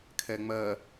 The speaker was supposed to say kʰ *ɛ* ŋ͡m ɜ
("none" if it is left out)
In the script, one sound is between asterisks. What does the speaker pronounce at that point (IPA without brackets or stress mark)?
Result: ɛ